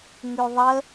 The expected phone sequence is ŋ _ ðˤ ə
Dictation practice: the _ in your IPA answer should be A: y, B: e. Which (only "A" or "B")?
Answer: A